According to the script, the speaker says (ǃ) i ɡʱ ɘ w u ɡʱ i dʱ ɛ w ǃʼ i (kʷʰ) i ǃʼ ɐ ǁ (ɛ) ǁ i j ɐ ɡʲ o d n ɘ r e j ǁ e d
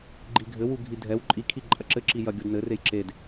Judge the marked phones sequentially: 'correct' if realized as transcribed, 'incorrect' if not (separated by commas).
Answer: incorrect, incorrect, incorrect